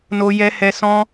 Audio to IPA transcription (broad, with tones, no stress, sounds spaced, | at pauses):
n o˦ j ɛ˦ h ɛ˦ s ɔ̃˦